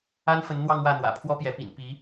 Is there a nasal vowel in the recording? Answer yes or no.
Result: no